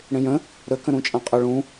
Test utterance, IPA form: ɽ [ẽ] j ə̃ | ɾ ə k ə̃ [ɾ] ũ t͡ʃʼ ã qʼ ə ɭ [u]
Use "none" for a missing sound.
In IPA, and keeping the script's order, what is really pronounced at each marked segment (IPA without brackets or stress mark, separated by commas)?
ẽ, ɾ, ũ